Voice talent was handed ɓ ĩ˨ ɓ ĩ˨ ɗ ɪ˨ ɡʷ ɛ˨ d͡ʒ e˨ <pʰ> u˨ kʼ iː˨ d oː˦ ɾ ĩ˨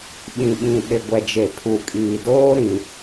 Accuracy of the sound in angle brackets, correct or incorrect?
correct